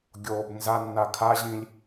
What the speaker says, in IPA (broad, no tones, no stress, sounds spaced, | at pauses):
ɡʲ oː b n z a nː a kʰ a ʑ ĩ lʲ